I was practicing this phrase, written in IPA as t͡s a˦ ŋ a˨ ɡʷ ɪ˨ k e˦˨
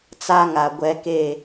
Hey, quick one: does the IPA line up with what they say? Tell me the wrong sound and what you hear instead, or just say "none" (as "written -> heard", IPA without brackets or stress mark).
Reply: ɪ˨ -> ɛ˨